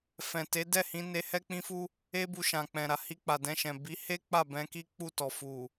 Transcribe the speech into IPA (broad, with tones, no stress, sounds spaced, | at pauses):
f ɛ̃˨ t e˨˦ d ɛ˦˨ h ĩ˧ n e˧ h ɛ˦ k͡p ĩ˦ f u˦ | e˦ b u˧ ʃ ã˨ k͡p ɛ̃˨ ɾ a˨ h i˧ k͡p a˨ d ɛ̃˧ ʃ ɛ̃˨ b i˨˦ h e˦ k͡p a˦˨ b ɛ̃˧ k i˦ k͡p u˦˨ t ɔ˨ f u˨